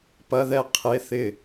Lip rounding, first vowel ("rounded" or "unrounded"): unrounded